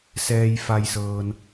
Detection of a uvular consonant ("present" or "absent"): absent